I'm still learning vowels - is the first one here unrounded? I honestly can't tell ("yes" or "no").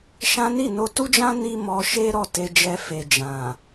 yes